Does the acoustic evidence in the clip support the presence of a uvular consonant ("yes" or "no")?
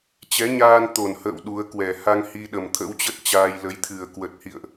no